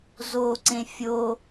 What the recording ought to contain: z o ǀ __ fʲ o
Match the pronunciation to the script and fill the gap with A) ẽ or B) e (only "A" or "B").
A